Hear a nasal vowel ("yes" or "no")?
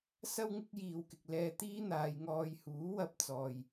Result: no